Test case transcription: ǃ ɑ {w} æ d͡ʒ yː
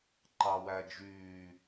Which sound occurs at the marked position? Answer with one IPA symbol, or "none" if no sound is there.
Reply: w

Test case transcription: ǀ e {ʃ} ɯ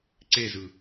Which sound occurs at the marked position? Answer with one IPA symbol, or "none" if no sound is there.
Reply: z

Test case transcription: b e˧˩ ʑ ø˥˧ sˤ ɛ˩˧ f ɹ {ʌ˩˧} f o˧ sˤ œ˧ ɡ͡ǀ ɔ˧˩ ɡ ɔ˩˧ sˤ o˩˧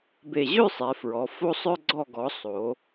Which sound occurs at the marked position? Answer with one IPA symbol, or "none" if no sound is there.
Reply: ɔ˩˧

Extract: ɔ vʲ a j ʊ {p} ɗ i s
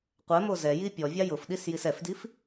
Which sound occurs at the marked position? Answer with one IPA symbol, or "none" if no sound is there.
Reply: f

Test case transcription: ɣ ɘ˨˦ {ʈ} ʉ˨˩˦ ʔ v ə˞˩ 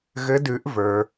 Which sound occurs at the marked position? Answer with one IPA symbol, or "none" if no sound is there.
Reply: d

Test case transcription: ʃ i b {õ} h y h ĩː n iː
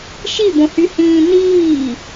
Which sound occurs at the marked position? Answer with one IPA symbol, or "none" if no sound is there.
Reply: õ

